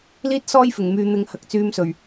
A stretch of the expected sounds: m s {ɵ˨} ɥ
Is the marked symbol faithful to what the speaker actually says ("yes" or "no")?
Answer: no